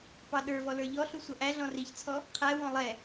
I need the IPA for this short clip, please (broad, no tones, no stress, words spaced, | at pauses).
pɑɗə˞vɔ lə˞ʎɔ ɬusʷʌʔæ ɮɔ̃riçt͡sʰɔ | qʰæwɔ̃ lˠɛ